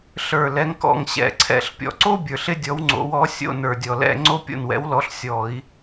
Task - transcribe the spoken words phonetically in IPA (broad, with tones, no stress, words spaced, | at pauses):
ɬə˞˨˩ lɛ˨˥ŋkɔ̰˥˨ŋ ɕɛ̰˧˩˧ǀʰɛ̰˧˩˧ɬ pʲɔ̰˨˩ǀo˥bʲə˞˨˩ɬ ɪ˥dʲɔ˨˥w ŋ͡ǀo̰˨˥wɔ˨˥ sʲo̰˧˥˧nə˞˨˩dʲɔ˨˩lɛ̰˧˥˧ ŋ͡ǀo˥ pʲo̰˥˨nwɛ̰˨˥wlɔ˨˥ɬ sʲɔ˧˩˧i̯